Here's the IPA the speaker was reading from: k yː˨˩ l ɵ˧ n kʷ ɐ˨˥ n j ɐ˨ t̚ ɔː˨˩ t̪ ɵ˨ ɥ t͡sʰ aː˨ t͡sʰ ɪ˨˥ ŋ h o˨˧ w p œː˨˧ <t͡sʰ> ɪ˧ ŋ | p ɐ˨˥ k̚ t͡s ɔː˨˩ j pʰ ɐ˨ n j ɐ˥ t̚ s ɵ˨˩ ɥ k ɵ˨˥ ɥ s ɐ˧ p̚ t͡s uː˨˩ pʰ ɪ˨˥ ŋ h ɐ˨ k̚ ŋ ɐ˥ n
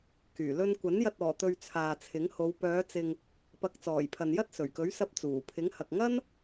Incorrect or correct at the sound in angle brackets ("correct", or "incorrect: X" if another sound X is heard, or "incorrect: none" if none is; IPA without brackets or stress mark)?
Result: incorrect: t͡s